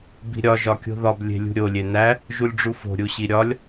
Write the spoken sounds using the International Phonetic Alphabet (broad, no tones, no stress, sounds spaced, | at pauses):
b i̤ ɾʲ ɒ ʒ ɒ kʲ o̤ ð ɒ b lʲ e̤ lʲ ṳ ɾʲ o lʲ e n æ | ʒ u lʲ ɖ͡ʐ u f o̤ ɾʲ u ɕ i ɾʲ ɒ lʲ